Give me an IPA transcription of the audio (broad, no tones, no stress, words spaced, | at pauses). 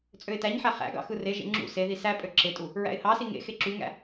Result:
t͡sʼøɪ̯tæɲħæ χæ̰ɡɑ̰ xɯreʒḛ ŋ͡ǁṵ seði sæpʼø ǁetʼu | ɹæ̰ɪ̯hɑsi ŋḛ xeǁyŋæ̰